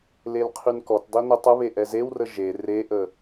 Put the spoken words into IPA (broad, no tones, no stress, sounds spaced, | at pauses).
l e l qʰ y n k ɔ t dˤ i n ə tˤ ə β e ʔ ɛ z e w r ə ʒ e r e ʔ ə